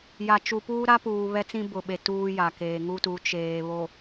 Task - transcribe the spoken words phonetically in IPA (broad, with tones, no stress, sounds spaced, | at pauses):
j a˨ t͡ʃ u˨ p uː˦ ɾ a˦ p uː˨ β ɛ˦ t͡s ĩ˦ b ʊ˨ ɓ e˨ t uː˦ j a˨ k eː˨ ŋ u˦ t u˨˦ t͡ʃ eː˨ β o˨